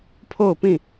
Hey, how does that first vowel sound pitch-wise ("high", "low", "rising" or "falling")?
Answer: falling